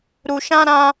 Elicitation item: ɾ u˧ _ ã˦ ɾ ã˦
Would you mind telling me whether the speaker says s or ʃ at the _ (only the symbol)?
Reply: ʃ